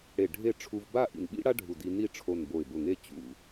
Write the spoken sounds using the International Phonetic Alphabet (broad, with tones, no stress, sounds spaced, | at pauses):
ɽ e˧˩ ɖʱ e˥˧ ʈ͡ʂʰ u˧ v b a˥˧ ʔ ḭ˧˩ n ɓ ḭ˥ ɽ a˥ ɖʱ u˧˩ d i˧ n i˥˧ ʈ͡ʂʰ o˧˩ n b o˧˩ ɪ̯ b ʊ˧˩ ŋ e˥˧ t͡ɕ ṵ˧˩